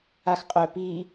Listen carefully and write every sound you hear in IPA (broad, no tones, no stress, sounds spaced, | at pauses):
a x qʼ œ p iː